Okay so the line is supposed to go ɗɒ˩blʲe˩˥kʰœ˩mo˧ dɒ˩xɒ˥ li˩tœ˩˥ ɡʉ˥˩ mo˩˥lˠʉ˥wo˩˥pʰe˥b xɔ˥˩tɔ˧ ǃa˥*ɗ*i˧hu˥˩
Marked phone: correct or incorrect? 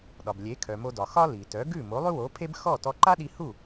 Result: correct